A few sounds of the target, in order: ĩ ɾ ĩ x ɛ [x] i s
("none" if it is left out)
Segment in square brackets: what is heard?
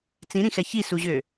ç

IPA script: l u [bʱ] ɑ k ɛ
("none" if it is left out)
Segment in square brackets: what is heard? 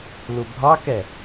bʱ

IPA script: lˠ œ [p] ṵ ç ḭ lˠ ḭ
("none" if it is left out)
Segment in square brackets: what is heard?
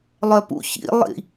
p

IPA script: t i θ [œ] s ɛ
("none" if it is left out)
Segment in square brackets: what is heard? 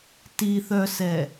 œ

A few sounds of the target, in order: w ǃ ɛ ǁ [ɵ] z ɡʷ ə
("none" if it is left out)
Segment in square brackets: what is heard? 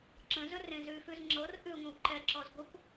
ɔ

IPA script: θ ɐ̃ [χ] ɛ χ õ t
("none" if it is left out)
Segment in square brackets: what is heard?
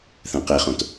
q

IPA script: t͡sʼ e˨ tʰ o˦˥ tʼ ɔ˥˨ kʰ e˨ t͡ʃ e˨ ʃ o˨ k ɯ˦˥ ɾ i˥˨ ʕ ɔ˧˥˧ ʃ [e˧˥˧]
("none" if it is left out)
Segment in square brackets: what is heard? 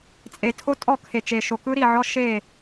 e˥˨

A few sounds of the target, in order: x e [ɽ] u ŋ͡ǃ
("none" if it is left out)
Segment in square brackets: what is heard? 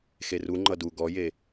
r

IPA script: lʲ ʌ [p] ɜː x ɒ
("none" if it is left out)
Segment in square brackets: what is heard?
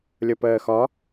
p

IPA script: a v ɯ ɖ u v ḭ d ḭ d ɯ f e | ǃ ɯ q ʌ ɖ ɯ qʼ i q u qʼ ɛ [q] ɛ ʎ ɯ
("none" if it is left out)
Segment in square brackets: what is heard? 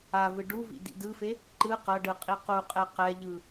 q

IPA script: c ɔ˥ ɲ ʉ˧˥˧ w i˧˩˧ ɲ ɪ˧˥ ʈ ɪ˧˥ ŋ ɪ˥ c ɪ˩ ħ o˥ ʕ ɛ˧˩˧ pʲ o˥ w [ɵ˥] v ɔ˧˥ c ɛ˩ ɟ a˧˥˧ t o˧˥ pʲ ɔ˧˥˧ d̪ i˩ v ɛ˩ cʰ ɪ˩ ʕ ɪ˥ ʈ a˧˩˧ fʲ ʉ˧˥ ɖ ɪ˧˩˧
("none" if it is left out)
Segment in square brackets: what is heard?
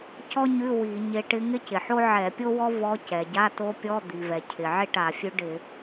ɔ˥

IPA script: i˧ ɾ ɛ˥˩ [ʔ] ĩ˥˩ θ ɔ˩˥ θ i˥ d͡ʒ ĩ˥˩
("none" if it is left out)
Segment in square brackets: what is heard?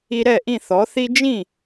ʔ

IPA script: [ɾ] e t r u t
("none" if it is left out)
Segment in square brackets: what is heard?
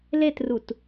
l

